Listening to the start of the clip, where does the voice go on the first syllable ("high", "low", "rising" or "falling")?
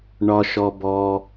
low